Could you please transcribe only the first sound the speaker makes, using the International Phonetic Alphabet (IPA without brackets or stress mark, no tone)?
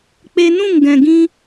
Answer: k͡p